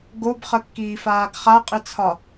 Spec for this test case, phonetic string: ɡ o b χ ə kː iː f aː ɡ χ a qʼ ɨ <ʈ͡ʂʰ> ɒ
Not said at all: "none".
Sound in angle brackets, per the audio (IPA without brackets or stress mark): t͡sʰ